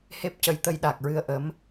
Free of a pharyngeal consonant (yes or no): yes